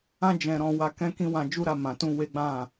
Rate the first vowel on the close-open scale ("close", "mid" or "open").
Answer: open